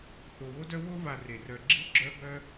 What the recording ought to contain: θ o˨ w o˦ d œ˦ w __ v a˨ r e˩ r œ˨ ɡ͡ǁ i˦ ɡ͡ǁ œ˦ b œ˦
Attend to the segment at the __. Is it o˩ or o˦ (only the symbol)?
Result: o˦